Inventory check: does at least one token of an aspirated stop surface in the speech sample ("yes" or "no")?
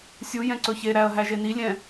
no